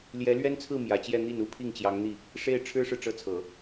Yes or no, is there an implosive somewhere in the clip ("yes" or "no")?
no